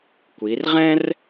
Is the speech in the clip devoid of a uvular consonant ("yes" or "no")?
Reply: no